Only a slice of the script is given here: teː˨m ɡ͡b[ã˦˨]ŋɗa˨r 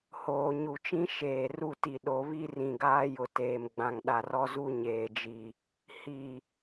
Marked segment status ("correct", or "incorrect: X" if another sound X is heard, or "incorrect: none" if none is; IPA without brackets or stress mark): incorrect: ã˨